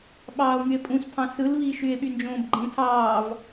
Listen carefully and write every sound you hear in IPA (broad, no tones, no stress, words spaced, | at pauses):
ɓɑːo̯ŋye̯pʼũspʰɑ̃ sɯlβi ʃye̯ɓynd͡ʒõːbɡ͡ǃẽ tʰɑːv